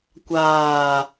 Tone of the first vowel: low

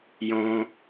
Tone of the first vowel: high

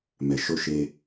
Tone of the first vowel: low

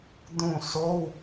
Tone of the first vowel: falling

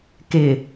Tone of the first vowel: low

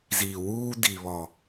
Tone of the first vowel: low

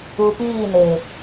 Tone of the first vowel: low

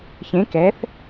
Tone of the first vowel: rising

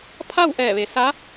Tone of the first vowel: falling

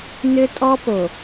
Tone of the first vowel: high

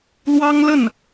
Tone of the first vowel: high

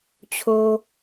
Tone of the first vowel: low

